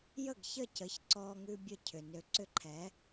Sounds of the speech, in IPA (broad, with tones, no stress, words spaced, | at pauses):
jə˥˩ɡçə˥˩cə˩˥ç ǀɔ˧ŋʉ˧ bʲə˥˩cʰʏ˩nø˧ ǀʏ˥˩ǃʰɛ˩˥